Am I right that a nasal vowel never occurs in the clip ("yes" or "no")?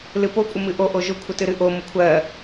yes